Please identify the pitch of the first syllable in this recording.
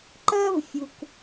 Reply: high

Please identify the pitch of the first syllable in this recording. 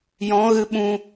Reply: rising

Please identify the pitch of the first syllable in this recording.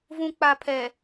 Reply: low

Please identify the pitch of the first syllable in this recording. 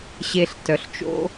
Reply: low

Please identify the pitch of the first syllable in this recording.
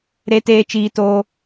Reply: high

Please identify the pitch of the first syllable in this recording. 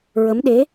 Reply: rising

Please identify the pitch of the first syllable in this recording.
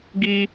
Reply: low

